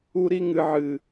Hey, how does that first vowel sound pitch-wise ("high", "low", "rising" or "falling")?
high